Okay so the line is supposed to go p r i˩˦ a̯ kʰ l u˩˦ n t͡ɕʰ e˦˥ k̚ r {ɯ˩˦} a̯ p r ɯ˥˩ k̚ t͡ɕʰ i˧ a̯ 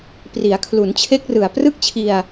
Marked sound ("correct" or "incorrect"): incorrect